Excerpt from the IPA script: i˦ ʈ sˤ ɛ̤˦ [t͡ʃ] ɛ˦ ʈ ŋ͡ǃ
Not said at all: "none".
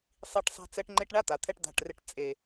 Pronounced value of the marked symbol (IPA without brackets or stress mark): t͡s